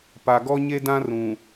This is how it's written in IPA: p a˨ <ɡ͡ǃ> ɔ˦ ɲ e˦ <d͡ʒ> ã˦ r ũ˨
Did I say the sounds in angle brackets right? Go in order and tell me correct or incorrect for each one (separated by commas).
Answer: incorrect, incorrect